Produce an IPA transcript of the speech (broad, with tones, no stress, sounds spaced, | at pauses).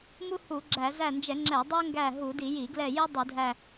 m u˥ h u˧˩˧ ɡ͡ǁ æ˧˩˧ z æ˦˨ n d͡ʒ ɛ˧˩˧ ŋ͡ǁ ɛ˧˩˧ dˤ ɛ˥ ŋ ɡ æ˦˨ ɦ u˧˩˧ d i˧˩˧ j i˧˩˧ ɡ l ɛ˦˨ j i˥ dˤ u˧˩˧ dʱ æ˦˨